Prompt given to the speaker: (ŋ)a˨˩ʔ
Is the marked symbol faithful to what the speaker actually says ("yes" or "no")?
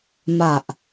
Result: no